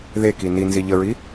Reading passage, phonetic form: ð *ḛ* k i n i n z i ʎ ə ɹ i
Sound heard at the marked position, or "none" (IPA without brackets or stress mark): e